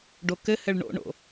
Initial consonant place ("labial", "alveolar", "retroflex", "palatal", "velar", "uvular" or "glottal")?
retroflex